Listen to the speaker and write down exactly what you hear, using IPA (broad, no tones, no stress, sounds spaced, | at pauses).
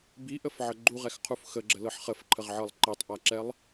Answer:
b i ʔ ə f ʕ ə ɡ͡ǃ u ʁ ɛ x qʰ u f x ə ɡ͡ǁ ə l ɤ ħ χ ə f ǃʰ ə ʁ ʕ ɤ lˠ ǃ i tˤ ʔ a ǁ ɛ lˠ